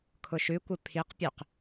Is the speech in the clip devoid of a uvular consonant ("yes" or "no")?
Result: no